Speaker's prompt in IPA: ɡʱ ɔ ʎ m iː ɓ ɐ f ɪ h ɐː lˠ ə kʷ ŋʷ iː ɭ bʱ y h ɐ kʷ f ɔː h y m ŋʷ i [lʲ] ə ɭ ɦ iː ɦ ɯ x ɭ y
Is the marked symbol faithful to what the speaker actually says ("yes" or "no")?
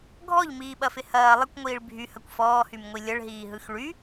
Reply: yes